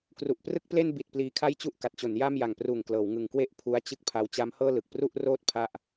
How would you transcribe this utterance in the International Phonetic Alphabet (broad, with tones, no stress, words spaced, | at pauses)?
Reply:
kru˨˩ʔprɯ˥˩k̚ple˥˩n bi˨˩t̚ pliː˧kʰa˥˩jt͡ɕu˥˩ʔ ka˨˩t̚t͡ɕo˩˦nja˥˩m ja˨˩ŋpruː˨˩ŋklɤː˩˦w ŋɯ˨˩ŋkwe˥˩ʔ pʰu˦˥a̯t͡ɕɯ˥˩k̚pʰa˦˥w t͡ɕa˦˥mhɤː˥˩ lɯ˨˩k̚ pru˥˩ʔroː˥˩t̚ pʰa˥˩ʔ